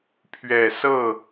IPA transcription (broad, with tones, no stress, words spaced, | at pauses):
pʰɥɛ˨˩sɤ˥˩